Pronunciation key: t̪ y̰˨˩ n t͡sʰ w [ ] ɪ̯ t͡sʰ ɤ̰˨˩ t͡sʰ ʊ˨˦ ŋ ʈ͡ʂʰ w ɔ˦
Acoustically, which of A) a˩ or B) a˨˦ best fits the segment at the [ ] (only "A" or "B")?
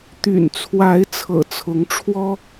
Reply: B